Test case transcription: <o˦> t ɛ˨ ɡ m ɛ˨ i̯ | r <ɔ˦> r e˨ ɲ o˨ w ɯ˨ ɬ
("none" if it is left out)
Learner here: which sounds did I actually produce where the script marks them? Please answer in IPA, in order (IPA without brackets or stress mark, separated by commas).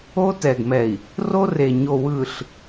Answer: o˦, o˦